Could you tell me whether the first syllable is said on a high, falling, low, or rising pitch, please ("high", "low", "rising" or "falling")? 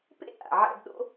high